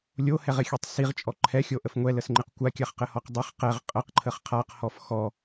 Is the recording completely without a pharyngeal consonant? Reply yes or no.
yes